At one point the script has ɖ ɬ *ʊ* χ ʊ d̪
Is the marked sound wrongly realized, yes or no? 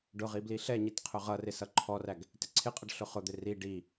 no